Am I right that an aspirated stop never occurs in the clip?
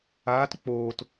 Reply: yes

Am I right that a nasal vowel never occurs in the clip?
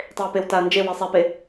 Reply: yes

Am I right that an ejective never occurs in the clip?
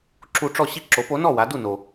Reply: yes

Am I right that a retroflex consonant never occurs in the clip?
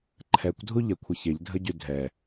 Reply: yes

